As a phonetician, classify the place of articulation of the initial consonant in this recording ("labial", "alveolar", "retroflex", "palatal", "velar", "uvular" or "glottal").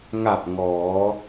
velar